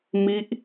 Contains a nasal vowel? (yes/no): no